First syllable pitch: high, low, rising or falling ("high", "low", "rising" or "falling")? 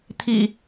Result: low